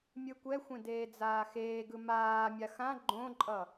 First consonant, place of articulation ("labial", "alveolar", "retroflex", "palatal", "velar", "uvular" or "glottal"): labial